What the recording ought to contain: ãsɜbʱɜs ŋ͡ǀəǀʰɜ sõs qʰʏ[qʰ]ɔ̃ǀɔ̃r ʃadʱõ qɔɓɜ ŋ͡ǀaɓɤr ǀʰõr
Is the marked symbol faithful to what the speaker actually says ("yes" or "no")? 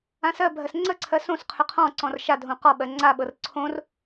yes